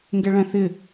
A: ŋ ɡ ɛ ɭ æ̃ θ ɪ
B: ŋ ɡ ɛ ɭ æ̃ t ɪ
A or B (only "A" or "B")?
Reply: A